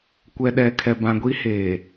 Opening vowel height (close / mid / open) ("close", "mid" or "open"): mid